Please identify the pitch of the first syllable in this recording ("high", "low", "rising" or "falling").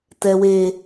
high